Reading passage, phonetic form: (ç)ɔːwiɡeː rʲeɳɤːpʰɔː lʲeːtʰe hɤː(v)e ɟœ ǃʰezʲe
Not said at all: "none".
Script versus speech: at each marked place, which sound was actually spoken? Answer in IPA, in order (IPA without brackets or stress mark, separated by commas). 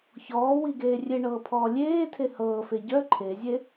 ç, f